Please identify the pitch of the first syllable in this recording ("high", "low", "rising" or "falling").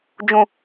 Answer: low